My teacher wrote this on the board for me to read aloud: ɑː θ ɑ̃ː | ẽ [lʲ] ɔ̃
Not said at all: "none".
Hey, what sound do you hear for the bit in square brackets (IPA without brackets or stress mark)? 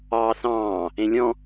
lʲ